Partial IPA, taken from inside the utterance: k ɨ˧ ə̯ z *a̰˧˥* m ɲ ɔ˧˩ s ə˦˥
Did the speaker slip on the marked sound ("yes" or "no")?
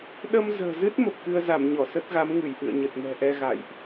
yes